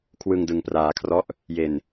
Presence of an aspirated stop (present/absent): present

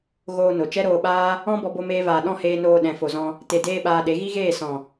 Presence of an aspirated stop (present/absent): absent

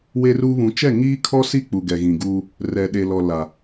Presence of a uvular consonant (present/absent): absent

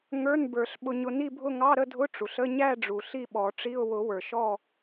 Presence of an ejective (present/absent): absent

